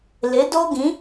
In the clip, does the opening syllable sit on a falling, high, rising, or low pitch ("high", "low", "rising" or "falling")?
rising